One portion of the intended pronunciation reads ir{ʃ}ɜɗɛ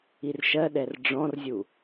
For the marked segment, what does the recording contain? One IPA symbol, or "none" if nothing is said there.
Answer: ʃ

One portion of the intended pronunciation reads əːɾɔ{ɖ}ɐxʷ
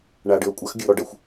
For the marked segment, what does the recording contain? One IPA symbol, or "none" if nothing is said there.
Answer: ɖ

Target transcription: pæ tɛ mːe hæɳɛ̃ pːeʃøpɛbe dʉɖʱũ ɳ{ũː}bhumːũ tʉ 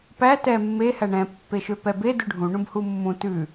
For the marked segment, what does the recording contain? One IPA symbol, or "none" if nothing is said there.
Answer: ũ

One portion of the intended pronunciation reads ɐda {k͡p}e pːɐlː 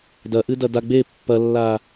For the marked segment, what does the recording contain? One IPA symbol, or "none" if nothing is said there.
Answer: ɡ͡b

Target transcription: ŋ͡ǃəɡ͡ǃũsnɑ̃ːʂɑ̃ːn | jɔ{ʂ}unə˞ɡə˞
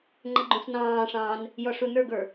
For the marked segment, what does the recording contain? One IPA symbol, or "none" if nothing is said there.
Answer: ʂ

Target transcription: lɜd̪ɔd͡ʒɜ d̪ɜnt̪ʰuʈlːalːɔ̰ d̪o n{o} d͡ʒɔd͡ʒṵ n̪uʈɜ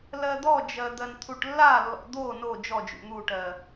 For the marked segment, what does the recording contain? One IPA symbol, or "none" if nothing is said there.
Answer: o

